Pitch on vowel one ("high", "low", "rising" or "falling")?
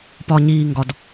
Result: low